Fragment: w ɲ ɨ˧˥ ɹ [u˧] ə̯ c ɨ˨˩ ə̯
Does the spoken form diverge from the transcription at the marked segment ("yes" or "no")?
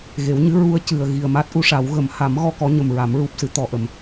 no